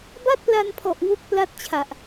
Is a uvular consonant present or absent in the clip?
absent